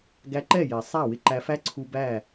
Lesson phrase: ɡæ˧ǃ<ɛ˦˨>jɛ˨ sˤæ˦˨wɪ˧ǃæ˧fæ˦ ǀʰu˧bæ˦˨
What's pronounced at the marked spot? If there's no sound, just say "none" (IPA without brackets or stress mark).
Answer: ɛ˦˨